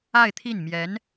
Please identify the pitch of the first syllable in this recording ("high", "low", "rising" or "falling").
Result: falling